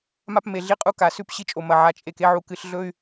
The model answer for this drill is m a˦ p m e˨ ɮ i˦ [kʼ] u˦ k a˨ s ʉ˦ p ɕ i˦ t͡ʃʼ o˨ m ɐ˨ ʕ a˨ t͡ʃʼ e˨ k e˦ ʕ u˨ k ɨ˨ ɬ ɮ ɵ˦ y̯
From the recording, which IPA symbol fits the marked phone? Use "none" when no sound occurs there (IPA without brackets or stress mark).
qʼ